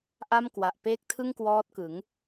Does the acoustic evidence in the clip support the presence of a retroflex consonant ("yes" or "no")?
no